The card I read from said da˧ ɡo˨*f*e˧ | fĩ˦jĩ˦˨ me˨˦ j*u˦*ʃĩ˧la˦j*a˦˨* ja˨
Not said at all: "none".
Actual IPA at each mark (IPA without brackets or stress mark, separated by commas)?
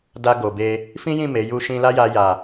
b, u˧, a˧